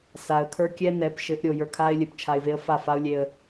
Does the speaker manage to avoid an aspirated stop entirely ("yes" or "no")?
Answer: no